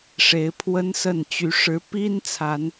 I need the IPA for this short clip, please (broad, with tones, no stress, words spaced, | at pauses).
ʂe˨˦ɪ̯pʰwə˦nsə˥˨nt͡ɕy˨˦ ʂɻ̩˨˦pi˦n t͡sʰa˨˦n